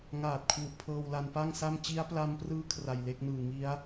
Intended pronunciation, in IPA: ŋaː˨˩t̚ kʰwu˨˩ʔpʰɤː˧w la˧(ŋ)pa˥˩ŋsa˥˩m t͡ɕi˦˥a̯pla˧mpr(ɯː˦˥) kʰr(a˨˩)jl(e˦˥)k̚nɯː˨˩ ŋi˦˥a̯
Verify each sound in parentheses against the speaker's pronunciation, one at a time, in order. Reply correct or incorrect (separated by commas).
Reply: incorrect, correct, correct, correct